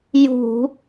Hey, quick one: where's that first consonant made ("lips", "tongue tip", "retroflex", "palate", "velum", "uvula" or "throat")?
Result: palate